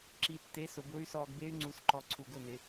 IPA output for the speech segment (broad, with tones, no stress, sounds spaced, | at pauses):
ǁ i˨˩ tː e˨˥ s ʊ˩˧ b ʊ˦˥ y̯ s ɔː˧ ɡ b e˦˥ y̯ ŋ͡ǀ u˨˥ s ǃ ɔ˨˩ ǀʰ u˨˩ ɡ ʊ˥˩ n ɪ˩˧